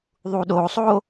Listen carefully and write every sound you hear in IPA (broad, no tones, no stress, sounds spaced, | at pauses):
ðˤ u ɗ o sˤ o